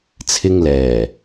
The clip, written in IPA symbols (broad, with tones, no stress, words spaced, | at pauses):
t͡sʰɪ˧ŋlɛː˨˩